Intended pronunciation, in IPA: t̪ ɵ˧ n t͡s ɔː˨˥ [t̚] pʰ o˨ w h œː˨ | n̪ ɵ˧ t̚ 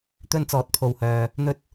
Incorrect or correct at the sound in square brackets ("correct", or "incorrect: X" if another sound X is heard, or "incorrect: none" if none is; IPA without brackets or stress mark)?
correct